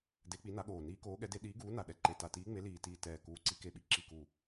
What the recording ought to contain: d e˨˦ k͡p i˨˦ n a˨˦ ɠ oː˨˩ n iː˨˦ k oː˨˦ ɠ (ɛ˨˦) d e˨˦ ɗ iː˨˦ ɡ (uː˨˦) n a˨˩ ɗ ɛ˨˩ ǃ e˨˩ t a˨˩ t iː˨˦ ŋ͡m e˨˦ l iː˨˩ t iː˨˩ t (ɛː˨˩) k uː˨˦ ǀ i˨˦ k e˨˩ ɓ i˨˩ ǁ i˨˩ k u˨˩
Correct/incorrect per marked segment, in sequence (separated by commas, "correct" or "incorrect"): correct, correct, correct